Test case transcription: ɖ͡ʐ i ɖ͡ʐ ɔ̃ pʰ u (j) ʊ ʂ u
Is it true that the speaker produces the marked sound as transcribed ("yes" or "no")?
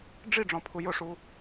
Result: yes